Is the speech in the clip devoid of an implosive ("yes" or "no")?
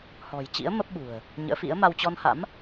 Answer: no